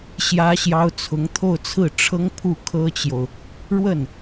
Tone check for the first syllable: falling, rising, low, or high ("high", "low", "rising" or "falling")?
high